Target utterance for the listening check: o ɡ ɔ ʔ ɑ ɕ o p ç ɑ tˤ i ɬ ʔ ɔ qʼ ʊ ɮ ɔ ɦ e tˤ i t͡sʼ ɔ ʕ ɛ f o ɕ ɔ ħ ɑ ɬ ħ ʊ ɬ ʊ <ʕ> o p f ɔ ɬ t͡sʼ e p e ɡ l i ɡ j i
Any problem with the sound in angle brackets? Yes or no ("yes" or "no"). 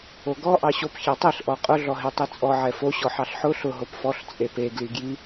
yes